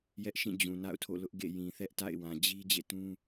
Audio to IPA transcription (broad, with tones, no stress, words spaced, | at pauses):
jɛ˦ʔʃĩ˦˨ d͡ʑũ˨ na̰˦˨ʊ̯tʰo̰˦˨lʊ˦ʔ ɡḛ˦˨ jĩ˨θɛ˦ʔta̰˦˨ɪ̯ wã˨d͡ʑi˦ d͡ʑḛ˦˨tũ˦